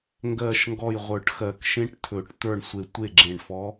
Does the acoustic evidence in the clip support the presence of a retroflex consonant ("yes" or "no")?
yes